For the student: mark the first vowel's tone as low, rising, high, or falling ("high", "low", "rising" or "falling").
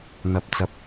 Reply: low